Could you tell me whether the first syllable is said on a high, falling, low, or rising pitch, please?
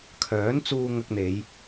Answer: rising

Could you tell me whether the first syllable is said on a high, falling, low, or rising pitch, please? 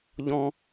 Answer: high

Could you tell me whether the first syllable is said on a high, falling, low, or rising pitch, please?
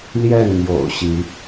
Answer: falling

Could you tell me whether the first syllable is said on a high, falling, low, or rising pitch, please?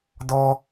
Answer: high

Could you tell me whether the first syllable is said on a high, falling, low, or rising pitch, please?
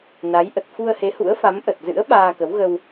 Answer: rising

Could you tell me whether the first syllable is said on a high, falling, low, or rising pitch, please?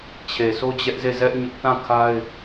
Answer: low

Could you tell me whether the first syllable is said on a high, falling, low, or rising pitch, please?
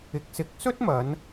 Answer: rising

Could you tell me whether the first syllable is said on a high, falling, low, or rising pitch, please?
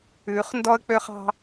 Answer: rising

